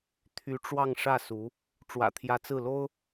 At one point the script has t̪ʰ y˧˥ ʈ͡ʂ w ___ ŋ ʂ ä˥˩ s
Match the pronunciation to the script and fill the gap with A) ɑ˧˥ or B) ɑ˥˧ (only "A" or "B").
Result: B